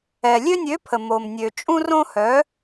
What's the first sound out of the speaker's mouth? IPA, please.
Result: ɛ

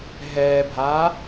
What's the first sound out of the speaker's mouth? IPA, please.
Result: ɦ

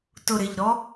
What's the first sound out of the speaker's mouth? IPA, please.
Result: t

